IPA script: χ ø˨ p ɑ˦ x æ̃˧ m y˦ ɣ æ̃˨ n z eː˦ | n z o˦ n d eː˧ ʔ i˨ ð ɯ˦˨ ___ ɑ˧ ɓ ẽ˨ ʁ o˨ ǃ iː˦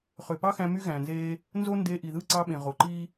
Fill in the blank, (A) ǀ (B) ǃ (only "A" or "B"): A